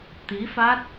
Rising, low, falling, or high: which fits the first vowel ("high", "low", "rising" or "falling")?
rising